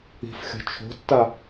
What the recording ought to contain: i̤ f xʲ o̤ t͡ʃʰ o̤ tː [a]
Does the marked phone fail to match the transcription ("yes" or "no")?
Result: no